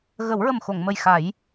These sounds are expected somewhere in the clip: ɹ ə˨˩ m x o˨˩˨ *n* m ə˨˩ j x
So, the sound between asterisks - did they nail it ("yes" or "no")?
no